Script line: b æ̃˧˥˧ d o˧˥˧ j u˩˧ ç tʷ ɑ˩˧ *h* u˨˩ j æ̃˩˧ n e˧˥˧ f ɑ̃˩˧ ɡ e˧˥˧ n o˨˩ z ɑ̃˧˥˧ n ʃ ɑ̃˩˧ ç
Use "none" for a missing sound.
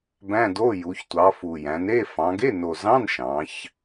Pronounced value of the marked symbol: f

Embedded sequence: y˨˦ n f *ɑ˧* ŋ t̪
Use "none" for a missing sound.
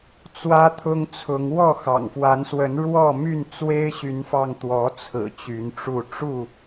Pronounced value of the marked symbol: ɑ˧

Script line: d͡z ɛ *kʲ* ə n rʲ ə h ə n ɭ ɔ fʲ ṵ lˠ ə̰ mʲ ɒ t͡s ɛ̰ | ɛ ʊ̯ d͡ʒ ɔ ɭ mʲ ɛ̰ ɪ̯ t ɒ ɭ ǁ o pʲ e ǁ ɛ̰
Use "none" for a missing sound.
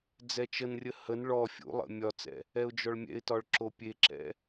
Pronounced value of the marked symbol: t͡ʃ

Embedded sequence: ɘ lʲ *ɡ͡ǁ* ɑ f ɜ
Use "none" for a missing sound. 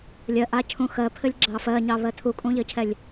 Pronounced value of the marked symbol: ɡ͡ǁ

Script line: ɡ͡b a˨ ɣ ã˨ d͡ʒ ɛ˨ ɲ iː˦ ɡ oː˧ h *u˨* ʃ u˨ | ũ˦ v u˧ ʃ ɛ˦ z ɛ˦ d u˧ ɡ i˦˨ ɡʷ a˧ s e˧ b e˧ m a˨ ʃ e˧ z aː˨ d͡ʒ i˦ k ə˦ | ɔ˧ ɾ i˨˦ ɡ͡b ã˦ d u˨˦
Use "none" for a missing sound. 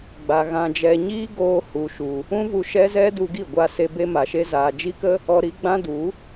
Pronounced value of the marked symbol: u˨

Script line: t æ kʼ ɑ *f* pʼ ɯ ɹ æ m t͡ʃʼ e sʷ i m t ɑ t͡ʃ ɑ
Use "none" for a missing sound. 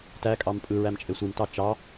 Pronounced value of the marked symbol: m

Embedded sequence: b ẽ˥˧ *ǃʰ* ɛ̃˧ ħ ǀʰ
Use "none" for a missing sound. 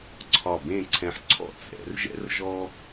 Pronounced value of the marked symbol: ǀʰ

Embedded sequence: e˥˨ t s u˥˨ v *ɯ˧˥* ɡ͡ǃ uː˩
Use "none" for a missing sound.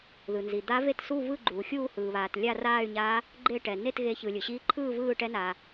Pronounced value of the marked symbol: ɯ˥˨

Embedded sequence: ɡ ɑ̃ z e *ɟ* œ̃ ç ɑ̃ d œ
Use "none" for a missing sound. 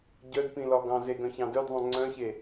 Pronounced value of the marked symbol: ɡ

